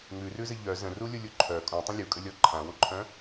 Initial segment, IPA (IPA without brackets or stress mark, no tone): ŋ